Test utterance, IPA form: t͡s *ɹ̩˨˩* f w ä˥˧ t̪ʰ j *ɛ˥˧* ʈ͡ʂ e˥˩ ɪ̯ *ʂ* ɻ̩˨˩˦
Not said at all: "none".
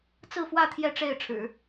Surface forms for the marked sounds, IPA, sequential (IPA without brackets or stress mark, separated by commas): ɹ̩˥˧, ɛ˥˧, ʈ͡ʂʰ